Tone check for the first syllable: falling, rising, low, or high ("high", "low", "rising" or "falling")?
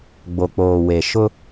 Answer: low